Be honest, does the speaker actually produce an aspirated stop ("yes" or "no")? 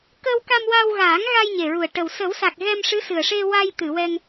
no